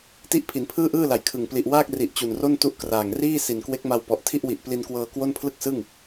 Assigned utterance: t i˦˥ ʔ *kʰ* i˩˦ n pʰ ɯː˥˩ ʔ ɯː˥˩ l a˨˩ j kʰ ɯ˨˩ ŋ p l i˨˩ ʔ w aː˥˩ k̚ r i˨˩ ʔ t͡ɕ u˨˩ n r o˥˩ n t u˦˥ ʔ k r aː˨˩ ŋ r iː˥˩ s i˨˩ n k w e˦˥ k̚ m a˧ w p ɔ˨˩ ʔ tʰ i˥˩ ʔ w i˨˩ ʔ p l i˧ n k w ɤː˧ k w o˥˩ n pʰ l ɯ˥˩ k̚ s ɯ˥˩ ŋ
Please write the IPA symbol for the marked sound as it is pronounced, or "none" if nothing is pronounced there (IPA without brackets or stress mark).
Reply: pʰ